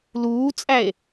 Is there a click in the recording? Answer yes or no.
no